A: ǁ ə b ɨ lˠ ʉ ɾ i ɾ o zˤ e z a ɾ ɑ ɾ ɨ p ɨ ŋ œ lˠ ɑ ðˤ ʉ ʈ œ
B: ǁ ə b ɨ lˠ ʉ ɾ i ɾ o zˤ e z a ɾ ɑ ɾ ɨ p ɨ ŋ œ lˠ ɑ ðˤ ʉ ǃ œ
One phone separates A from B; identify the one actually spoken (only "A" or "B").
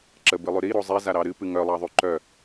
B